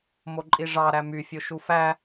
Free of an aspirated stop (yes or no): yes